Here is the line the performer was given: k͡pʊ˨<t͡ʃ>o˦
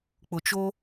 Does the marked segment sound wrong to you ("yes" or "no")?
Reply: no